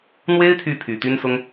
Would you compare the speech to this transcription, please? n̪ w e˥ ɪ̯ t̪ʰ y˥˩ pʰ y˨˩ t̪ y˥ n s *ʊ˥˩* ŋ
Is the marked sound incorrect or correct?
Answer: incorrect: ʊ˥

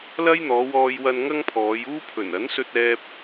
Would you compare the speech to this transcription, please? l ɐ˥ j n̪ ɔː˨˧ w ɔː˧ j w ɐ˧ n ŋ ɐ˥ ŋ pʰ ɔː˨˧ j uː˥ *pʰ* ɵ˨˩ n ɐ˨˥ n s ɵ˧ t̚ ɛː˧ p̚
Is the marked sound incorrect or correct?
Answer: correct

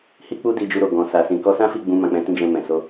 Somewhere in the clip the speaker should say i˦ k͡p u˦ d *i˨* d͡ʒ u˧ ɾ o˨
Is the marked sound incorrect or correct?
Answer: incorrect: i˧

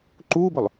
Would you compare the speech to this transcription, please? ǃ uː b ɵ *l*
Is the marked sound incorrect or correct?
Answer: incorrect: lˠ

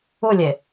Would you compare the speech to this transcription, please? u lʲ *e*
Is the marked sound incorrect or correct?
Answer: correct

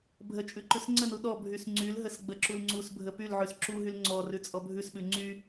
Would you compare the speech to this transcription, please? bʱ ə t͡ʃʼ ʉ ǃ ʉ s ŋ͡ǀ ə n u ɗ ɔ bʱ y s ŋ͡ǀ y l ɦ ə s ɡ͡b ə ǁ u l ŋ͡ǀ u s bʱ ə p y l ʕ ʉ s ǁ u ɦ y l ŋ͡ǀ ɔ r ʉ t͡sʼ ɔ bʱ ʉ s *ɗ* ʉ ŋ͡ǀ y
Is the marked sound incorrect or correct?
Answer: incorrect: ɓ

